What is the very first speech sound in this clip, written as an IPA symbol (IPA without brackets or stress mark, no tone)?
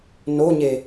n